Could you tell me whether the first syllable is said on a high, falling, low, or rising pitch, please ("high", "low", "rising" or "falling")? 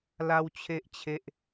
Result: high